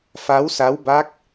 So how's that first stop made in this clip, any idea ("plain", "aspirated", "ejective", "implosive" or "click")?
plain